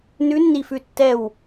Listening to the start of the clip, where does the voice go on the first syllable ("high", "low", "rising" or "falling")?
rising